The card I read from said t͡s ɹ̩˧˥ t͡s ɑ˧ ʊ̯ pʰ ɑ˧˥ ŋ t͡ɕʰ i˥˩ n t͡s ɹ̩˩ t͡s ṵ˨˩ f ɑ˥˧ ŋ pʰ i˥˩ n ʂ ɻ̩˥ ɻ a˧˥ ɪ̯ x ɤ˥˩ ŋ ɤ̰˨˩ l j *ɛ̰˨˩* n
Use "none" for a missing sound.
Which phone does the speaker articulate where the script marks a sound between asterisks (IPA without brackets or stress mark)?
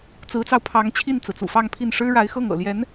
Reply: ɛ˧˥